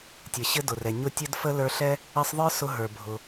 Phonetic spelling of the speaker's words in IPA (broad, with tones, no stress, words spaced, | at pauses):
tʲɘ˩ɕɘ˦ dʊ˩rɛ˩ ɲʊ˦tʲɘ˥d fə˥ lə˞˦ɬɛ˥ | ɘ˦sˤðˤə˞˥ sʊ˦ɦə˞˩ bʱʊ˩